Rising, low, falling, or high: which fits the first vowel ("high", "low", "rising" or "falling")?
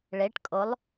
rising